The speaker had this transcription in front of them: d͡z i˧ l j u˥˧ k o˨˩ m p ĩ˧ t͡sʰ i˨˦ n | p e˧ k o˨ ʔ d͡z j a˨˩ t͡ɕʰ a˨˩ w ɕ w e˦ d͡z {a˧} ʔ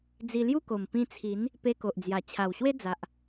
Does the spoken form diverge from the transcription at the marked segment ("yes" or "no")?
yes